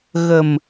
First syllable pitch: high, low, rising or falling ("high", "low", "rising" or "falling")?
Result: low